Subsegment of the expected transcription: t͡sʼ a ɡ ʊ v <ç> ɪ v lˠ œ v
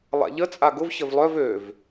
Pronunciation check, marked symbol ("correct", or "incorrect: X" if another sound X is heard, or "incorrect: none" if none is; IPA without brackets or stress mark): correct